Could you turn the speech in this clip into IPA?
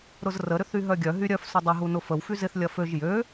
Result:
ɾ ʊ z r ə ɾ ʏ θ y ɦ œ ɡʲ œ ɦ y ɾʲ œ f s ʊ dˤ ə ɦ u n ʊ f ə w f y z ɪ θ lʲ ɐ f ø ʒ j ø

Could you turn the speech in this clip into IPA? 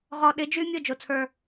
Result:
ʁ ɔ˨ ɗ ɪ˨˦ d͡ʒ y˦ mʲ ʊ˦˨ d͡ʒ o˨ t͡sʰ ə˞˦˨

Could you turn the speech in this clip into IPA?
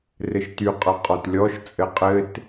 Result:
r ɘ ʃ t y qʼ ʌ qʼ ɔ t lʲ ɔ ʃ t͡sʼ ɘ qʼ ɘ t

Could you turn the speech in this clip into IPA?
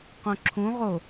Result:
q ũ ǁʰ ũ ʁ o

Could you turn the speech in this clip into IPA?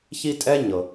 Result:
ç i˦ tʼ ɛ˥ ɲ ɤ˩

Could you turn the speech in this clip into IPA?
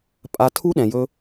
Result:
pʼ a˦ tʰ u˦ ɗ ɛ̃˧ j ɵ˦

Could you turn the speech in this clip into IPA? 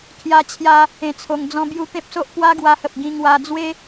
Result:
kʰ j a˧ t͡ɕʰ j a˧ | ẽ˧ t͡sʰ o˧ ŋ d͡z ɔ̃˦ b j u˦ t̪ ẽ˦ p̚ s o˦ ʔ p w a˦ ɡ w a˧ h ə˨ p̚ ɡ ĩ˧ ŋ w a˧ d͡z w e˦

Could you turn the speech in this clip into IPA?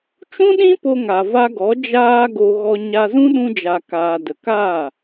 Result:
t͡ʃ ũ˦ ɗ ĩ˦ p o˧ ŋ a˨ v a˧ ɡ ɔ˨˦ d͡ʒ aː˧ ɡ o˨ ɣ ɔ˧ ɲ a˧ z ũ˦ ɗ ũ˧ d͡ʒ a˨ k aː˨ d ə˨ k aː˦˨

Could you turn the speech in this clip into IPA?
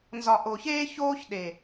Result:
n z ɒ˨ ʔ o˨ ç eː˦ ç oː˦ ç ɗ e˨

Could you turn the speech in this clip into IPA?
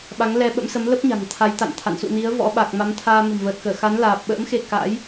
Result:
ɓ a˨˦ ŋ l ɛ˧ ɓ ə̰˧˥ m s ə˨˦ m l ə˦˥ p̚ ɲ a̤˨˩ ŋ t̪ʰ a˨˦ j t̪ a̰˧˨ n t̪ʰ a̰˧˨ n s ṵ˧˨ n i˨˦ ə̯ v ɔ̰˧˥ ɓ a˨˩ k̚ m a˨˦ m t̪ʰ aː˧ m ə̤˨˩ m v əː˨˩ t̚ k əː˧˩ x a˨˦ n l aː˨˩ p̚ ɓ ə̰ː˧˥ m x e˧ k a̰˧˥ j

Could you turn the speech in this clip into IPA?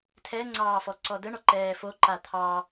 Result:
tʰ ɛ ŋ͡ǀ ɑː f ɔ ǀ ɔ d ə ɳ ɔ ǃ ɛː f o ǃ a t̪ʰ ɑ

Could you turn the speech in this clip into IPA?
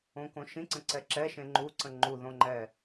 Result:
õ k õ ʃ ĩ ǀ ə̃ ǀ ɛ ǁ ɛ ʃ ẽ ŋ͡ǃ u ǀ ə̃ ŋ͡ǃ u ð õ ŋ͡ǃ ɛ

